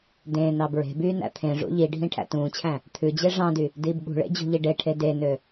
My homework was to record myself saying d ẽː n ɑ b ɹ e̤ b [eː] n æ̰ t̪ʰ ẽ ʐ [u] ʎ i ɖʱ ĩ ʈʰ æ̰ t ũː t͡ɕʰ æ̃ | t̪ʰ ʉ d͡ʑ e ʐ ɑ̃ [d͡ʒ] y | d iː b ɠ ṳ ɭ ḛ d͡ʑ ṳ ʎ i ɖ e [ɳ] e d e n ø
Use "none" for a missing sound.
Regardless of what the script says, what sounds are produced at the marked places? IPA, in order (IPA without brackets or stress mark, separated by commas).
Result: yː, ṵ, d, ʈʰ